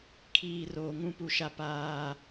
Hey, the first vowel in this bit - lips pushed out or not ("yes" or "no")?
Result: no